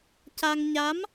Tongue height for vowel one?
low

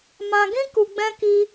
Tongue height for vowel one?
low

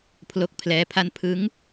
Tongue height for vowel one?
mid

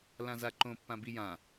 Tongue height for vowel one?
low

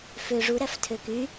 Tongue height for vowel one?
mid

